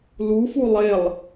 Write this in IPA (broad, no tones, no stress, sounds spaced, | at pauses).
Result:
l u f u lˠ e lˠ